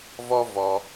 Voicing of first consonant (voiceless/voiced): voiced